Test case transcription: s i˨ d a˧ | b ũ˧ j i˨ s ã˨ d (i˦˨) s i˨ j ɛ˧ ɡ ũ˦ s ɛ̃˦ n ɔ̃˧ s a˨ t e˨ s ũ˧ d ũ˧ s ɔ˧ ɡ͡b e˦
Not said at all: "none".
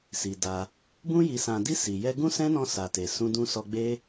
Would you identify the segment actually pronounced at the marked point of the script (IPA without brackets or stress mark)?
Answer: i˧